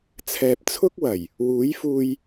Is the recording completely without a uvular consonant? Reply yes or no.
yes